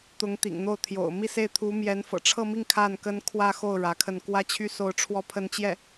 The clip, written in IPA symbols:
t̪ ʊ˧˥ ŋ t̪ ḭ˨˩ ŋ n̪ o˥˩ ʊ̯ t̪ʰ j o̰˨˩ ʊ̯ m i˥˧ s e˥˩ ɪ̯ t̪ʰ u˧˥ m j ɛ˧˥ n f ɤ̰˨˩ ʈ͡ʂʰ ɤ˥˧ m i˥˧ ŋ kʰ a˥˩ n k ə˥ n kʰ w ä˥˧ x o˥˩ ʊ̯ ɻ ä˧˥ kʰ ə˥˩ n k w ä˥ t͡ɕʰ y˥ s o˥˧ ʊ̯ ʈ͡ʂʰ w ɔ˥˧ pʰ ə˥˧ n t͡ɕ j ɛ˥˩

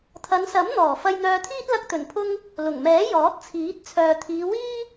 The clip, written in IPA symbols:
t̪ʰ ɐ˨˧ n s ɐ˨˥ m n̪ ɔː˨˩ f ɐ˧ j n̪ œː˧ t̪ʰ iː˥ t̚ l ɐ˧ k̚ t̪ ɵ˨˩ n pʰ ʊ˧ ŋ | l ʊ˨˩ ŋ m ɛː˨˥ j ɔː˨˥ t̚ t͡sʰ iː˨˥ t̚ t͡sʰ œː˨ t̪ʰ iː˨˧ w iː˥

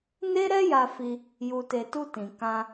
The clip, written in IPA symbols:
n e˦ ɾ ɛ˦ j a˧ f i˧ | j u˨ t e˨ t u˧ t ĩ˨ k ã˧

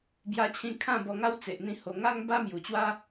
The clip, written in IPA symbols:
b j a˧ t͡ɕʰ ĩ˧ kʰ ã˥˧ b ɔ˧ ŋ a˦ w t͡s e˨ ʔ n̪ ĩ˧ h o˨˩ ŋ a˦ ŋ b a˦ m j u˨˩ t͡ɕ w a˦

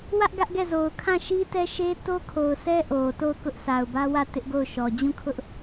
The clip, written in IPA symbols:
w ä˦ ʔ ɡ ä˦ ʔ ɡ ɛ˦˨ z o˨ ʊ̯ kʰ ã˦˨ ʃ i˦ t ɛ˦ ʃ e˦ t o˦ kʰ o˨ ʊ̯ s ɛ˦ ʔ o˨ t o˦˨ ʊ̯ k ʊ˦ ʔ sʰ a˨ ʊ̯ b ä˦ w ä˦˨ t ɪ˦ ʔ ɡ o˦˨ ʊ̯ ʃ ɔ˨ d͡ʑ ũ˦˨ kʰ ʊ˦ ʔ

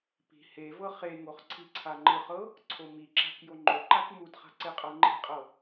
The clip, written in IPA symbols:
p i̤ h e v ɤ χ e ŋ o χ ǀʰ i ǀʰ a ŋ͡ǃ ɯ χ ɤ | ǀʰ o m i ǁ a̤ k j o ŋ͡ǃ o ǃ a k m u d χ a̤ ǀ e qʼ ɤ ŋ͡ǃ i̤ qʼ ɤ

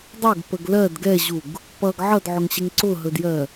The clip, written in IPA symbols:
dˤ ɵ ɡ p ə ɡ l ɜ d ɡ ɛ ʑ u ɡ | p ʌ ɡ ʕ ʌ d ʕ ʊ ŋ ɕ ɛ ŋ ǀ ʊ ɦ ɵ d j ɜ

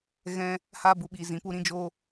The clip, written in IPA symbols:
ɣ ɛ̃˧ | h aː˧ b u˨ ɓ iː˨ z ĩ˨˦ p u˦ ɾ ĩ˧ d͡ʒ oː˧

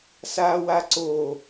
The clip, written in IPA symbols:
s a w a ǀ o

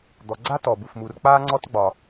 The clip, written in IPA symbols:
d̪ ɔ˨ ɡ͡ǀ a˥ t ɔ˩ b u˩ f m u˨ r k͡p aː˥ ŋ͡ǀ ɔ˥ t ɡ͡b ɒ˩

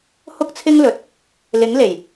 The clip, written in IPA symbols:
h ʊ˥ k̚ t͡sʰ ɪ˥ ŋ l ɵ˨ t̚ | l ɪ˨˥ ŋ l e˨˩ j

